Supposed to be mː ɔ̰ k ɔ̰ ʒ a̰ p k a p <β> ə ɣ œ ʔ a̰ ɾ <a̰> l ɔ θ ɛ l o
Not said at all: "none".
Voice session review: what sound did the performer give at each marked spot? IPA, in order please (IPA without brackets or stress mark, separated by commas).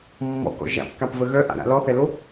v, a̰